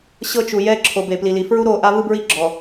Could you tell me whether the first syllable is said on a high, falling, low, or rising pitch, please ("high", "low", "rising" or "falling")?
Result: high